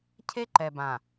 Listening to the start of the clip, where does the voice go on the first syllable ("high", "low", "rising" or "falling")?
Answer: high